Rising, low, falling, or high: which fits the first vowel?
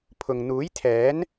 low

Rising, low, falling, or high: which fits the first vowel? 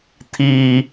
low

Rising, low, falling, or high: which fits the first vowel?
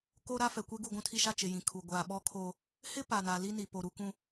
high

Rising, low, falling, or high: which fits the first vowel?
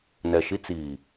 low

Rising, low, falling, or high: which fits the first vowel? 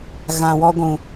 low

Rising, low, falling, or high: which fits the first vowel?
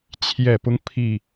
low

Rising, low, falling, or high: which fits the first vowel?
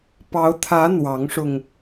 rising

